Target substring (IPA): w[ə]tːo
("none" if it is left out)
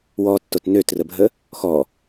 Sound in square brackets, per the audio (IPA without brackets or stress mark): ɔ